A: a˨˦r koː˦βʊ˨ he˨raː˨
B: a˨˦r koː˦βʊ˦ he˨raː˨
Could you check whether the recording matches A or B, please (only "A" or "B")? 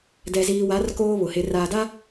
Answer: A